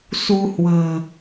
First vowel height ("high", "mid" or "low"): high